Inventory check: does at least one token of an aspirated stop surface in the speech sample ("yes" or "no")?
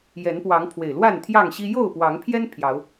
yes